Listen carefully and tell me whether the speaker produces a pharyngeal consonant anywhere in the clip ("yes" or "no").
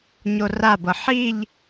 yes